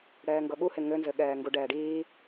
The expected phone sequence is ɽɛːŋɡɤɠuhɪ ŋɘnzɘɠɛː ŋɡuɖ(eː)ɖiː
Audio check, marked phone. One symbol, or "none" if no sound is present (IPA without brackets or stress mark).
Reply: ɛː